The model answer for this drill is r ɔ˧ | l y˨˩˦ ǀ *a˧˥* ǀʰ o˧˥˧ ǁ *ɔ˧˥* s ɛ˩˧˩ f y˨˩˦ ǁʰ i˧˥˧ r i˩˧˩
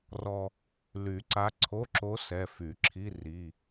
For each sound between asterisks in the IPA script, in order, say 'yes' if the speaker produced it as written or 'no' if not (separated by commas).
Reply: yes, no